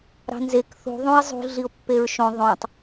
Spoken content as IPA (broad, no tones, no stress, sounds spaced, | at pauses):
ɾ ɑ̤ n z e k θ ṳ ðˤ ũ ɪ̯ zˤ ṳ ɮ i ʊ̯ pː e ɹ ʃ õ ðˤ õ tˤ